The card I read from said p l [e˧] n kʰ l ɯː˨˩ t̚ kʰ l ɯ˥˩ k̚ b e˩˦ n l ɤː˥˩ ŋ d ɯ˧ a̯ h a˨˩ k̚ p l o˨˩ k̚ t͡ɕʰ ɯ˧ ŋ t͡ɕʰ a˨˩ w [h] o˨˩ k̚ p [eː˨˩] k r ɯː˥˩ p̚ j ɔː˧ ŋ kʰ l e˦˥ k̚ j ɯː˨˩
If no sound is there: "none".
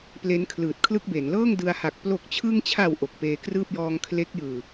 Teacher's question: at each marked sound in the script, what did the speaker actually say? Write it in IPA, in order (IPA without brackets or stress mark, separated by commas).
e˦˥, ʔ, eː˧